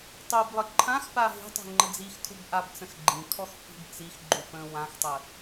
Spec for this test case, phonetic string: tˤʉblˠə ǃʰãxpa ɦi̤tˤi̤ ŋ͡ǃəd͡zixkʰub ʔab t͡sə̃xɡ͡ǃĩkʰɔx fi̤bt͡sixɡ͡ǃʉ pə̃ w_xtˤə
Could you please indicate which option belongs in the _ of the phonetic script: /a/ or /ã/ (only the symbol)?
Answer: ã